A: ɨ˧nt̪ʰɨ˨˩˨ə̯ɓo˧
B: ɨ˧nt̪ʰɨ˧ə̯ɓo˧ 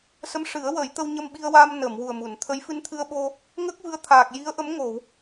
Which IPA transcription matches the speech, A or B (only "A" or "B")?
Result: B